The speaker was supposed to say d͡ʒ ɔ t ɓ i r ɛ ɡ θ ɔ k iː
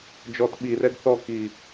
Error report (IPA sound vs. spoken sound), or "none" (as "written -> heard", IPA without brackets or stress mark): none